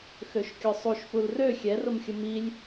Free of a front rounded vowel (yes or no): no